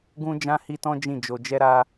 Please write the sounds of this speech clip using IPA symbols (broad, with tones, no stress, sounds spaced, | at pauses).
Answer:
ɡ ũ˦ d͡ʒ ã˦ h i˦ t ɔ̃˦ d͡ʒ ĩ˦˨ d͡ʒ o˧ d͡ʒ ɛ˦ ɾ a˦